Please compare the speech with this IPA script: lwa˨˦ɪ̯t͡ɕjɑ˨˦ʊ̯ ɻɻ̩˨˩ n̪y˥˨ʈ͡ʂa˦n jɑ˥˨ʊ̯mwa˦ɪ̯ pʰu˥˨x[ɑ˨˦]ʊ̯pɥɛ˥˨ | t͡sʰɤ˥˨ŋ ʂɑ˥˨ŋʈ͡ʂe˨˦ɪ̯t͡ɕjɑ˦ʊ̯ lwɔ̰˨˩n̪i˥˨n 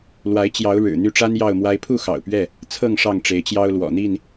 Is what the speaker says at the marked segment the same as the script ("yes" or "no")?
no